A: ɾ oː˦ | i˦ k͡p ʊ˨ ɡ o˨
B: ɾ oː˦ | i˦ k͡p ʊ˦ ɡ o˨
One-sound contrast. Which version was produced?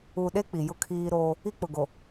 A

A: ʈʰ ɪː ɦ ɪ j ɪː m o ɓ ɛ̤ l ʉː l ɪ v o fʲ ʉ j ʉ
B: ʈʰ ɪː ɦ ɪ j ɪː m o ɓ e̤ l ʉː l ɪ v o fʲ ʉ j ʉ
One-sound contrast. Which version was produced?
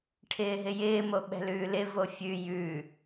A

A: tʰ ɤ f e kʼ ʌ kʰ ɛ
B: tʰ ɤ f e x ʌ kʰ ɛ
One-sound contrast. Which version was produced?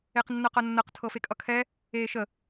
A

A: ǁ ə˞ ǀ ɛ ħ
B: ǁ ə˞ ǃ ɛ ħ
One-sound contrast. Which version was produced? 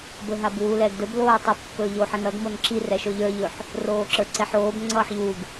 A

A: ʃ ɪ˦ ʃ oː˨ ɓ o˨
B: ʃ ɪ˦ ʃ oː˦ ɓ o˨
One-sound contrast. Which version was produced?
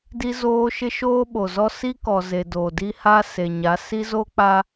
B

